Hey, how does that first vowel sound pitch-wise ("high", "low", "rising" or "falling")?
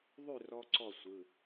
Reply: falling